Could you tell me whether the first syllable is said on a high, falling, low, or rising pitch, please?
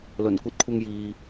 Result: low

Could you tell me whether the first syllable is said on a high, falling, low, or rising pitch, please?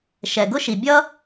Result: low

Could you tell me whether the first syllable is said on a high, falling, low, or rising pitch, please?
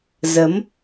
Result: rising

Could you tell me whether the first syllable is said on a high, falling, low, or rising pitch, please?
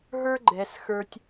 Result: high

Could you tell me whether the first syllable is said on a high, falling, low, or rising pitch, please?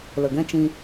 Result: low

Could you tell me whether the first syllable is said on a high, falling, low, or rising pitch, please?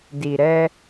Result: low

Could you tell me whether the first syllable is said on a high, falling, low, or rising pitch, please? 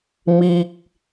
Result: high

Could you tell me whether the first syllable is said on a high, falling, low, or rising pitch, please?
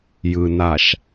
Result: low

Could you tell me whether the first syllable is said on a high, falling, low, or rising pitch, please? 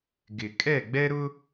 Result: low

